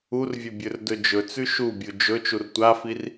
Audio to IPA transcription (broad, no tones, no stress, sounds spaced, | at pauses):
u r vʲ ɵ bʲ ɵ r d ɵ d͡ʒ ɵ t͡s ʉ ʃ u bʲ u d͡ʒ ɵ t͡ʃ u r tʷ a f i r